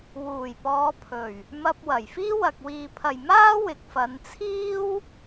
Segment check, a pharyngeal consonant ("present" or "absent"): absent